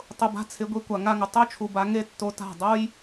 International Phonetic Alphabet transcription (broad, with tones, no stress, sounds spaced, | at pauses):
tˤ ʊ˧ b a̤˦ t͡sʰ ɪ˨˦ ɡʷ i˧ kʷ a˨ ŋ a˧ ŋ ʊ˨ tˤ o˦ t͡ʃʰ u˨ b a˧ ŋ e˦ tː o˧ t a̤˦˨ dˤ o˦ j